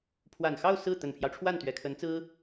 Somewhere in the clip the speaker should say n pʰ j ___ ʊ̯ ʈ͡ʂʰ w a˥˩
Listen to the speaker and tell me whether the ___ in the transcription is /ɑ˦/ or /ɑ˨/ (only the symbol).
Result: ɑ˦